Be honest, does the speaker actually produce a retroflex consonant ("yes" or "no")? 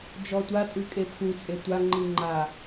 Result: no